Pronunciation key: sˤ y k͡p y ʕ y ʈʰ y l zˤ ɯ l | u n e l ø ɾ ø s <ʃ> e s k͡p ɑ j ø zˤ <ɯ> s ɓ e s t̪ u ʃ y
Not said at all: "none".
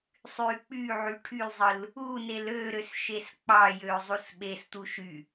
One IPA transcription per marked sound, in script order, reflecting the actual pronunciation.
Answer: ʃ, u

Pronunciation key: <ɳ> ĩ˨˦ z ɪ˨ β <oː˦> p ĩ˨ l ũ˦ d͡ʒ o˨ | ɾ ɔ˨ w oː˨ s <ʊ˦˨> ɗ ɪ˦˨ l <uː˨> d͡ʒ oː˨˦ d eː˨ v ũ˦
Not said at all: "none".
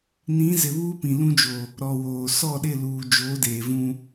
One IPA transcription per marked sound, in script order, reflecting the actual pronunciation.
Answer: n, uː˦, ɔ˦˨, uː˨

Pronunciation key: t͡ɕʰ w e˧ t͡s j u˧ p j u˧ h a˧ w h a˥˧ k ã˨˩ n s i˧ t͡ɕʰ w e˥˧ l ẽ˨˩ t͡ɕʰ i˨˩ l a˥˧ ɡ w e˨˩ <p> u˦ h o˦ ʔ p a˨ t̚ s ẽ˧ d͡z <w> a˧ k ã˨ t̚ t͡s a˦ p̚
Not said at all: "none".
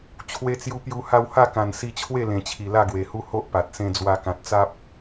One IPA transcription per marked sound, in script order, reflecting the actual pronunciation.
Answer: h, w

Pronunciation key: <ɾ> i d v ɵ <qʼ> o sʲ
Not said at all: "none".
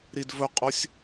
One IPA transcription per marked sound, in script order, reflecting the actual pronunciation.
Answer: ɾ, qʼ

